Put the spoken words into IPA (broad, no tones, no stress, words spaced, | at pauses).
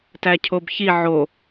tæcʰobçi ʕo